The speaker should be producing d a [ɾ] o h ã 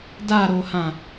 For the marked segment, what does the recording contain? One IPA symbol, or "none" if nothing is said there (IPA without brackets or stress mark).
ɾ